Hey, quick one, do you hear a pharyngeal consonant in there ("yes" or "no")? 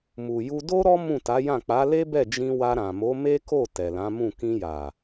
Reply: no